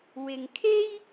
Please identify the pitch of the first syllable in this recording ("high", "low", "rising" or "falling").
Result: low